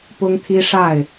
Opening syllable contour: high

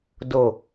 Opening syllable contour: low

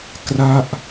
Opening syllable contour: falling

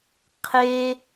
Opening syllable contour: high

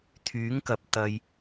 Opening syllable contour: rising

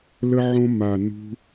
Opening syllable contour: high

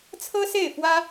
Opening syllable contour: high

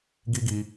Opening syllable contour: high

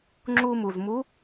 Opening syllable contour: high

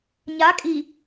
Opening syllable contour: rising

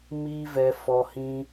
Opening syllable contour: high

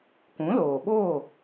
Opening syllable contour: rising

